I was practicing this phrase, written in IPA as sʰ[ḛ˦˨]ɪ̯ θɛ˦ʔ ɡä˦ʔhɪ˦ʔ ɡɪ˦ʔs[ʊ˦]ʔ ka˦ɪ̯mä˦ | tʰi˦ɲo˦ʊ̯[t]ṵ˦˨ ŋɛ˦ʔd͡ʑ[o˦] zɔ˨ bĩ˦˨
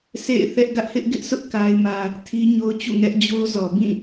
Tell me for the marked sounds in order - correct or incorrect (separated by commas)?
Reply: correct, correct, incorrect, correct